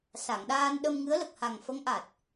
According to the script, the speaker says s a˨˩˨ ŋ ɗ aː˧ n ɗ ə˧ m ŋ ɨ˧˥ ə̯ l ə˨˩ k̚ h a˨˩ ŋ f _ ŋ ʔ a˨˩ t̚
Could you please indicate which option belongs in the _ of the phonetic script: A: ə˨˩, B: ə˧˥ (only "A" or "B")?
B